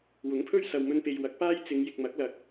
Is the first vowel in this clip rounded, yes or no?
yes